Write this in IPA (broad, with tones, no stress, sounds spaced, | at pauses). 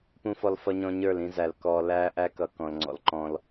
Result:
p ũ˨ f ɔ˨ l f ʌ˨ ɲ ɔ̃˨ ɲ ə˞˦˨ l ĩ˦ z æ˨ l k ɔ˨ l æː˦ ʔ æ˦ k ʌ˨ k ɔ̃˨ l ŋ͡ǀ ɔ̰˨ l ǃ ɔ̃˦ l